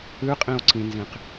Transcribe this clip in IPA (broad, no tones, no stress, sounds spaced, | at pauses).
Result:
ɨ qʼ ĩ o̯ ǀ ĩ n z ĩ q